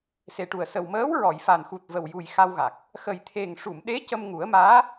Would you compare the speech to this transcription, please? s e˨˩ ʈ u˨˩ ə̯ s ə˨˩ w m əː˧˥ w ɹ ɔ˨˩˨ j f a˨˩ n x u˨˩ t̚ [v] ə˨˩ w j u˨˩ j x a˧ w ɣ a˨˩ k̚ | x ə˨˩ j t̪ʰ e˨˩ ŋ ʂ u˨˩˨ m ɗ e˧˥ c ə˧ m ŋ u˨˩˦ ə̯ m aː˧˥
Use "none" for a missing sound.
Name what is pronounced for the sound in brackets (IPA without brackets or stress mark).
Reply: v